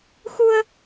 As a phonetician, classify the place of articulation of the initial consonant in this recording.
velar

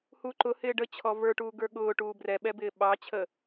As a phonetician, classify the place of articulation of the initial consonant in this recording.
glottal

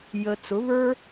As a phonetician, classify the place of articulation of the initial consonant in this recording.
palatal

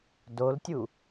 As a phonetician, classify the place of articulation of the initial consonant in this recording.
alveolar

